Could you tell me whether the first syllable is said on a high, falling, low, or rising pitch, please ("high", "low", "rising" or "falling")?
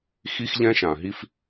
high